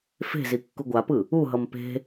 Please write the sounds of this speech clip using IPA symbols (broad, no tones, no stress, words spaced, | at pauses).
fe̤zi kːuɡʷapɯ | uɦʌm pe̤